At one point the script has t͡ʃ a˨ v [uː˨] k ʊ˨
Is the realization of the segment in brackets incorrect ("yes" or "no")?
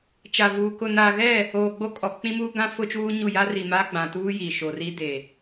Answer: no